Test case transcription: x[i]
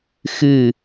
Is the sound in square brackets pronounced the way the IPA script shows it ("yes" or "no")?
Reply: no